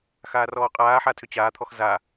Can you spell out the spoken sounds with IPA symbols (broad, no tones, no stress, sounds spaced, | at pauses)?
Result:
x aː r ɔː qʼ aː ħ a tʰ ʏ t͡ɕ aː t̪ʰ ɔ x z a